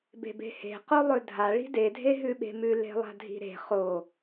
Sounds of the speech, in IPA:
b e̤ b e̤ h e̤ q o lˠ ɵ dʱ a ɭ i̤ d e dʱ e ɦ ʉ ɓ e̤ m ʉ l e̤ lˠ a̤ dʱ i̤ ɾ e̤ χ o

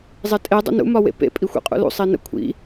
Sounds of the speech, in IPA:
zˤ e tʼ e dˤ ə̰ n ṵ m ɒ w ḛ p ḛ pʼ i xʷ ḭ qʼ ṵ l ṵ sˤ i n ə̰ kʷʰ ḭ

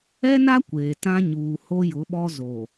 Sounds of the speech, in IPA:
ɛ˦ n a˦ kʷ eː˨ t ã˦ ɲ uː˨ h o˦ j ʊ˨˦ ɓ ɔ˦ z o˨

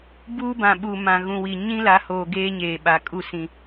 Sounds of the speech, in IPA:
b uː˦ b ã˨ ɓ u˨ m ã˨ ɣ ũ˨ w i˨ ɲ ĩ˦ l a˨˦ h oː˨ ɡ eː˦ ɲ eː˨ ɓ a˨ kʼ u˦˨ s ĩ˨

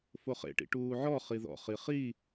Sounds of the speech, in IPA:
f o χ ḛ ʈ ḭ ʈ uː ʕ ɔ χ i ð ɔ̰ χ i χ i

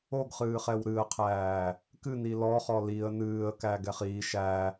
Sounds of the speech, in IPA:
o ɡ χ ɨː χ ɛ w ɾ ɨ ə̯ qʰ æː | k ɨ n i l ɔ χ ɔ l i ə̯ n ɨː ə̯ k æ ɡ ɛ χ i ʃ æ

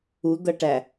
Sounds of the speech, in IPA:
u d̪ ʌ ʈ æ

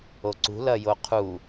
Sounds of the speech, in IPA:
o ǀ ṳ l ɐ j o qʰ u

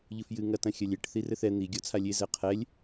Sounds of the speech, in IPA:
ʎ ɨ f j ɨ ŋ ɐ t ɐ̃ xʲ ɐ lʲ e ʈ θ i r ɘ θ ɛ n̪ i ɡʲ ɔ t͡sʰ a lʲ e z ɛ qʰ ɛ lʲ

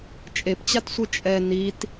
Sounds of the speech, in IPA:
t͡ʃʼ e p t͡ɕ a t sʷ ɯ t͡ʃʼ ɛ n i t

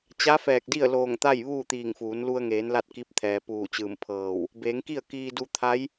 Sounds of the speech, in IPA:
t͡ɕ a˧˥ f ɛː˧˩ k̚ d i˥˨ ə̯ l oː˧˩ ŋ t̪ a˥˨ j ʋ uː˥˨ t̪ iː˧˩ ŋ f uː˩˧ n l u˧ ə̯ ŋ eː˩˧ n l a˥˨ t̚ k i˧˥ p̚ t̪ʰ ɛː˩ p uː˧˩ t͡ɕ ɯː˧˩ m pʰ ɤː˧˩ w | b eː˩˧ ŋ k i˥˨ ə̯ k iː˧ d u˧ t̪ʰ a˧˥ j

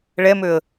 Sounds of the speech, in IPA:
ɭ ɛ m ø ə̯

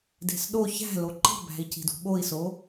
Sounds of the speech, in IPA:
d e̤ s ɗ o ç æ̤ l o ǃ i̤ b æ̤ i̯ c i̤ d ṳ ɓ o i̯ s o

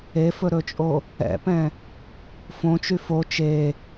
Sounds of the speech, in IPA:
e f ɵ ɾ ɵ t͡ʃʼ o | ɛ̰ p ɛ̃ | f õ t͡ʃ y f o t͡ʃ e

